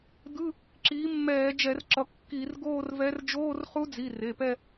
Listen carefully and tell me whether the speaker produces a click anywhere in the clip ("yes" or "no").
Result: yes